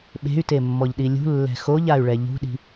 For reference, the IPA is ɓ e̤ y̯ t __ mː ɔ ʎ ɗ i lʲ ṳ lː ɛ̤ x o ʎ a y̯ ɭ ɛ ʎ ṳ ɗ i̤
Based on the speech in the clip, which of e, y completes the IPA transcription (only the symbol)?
e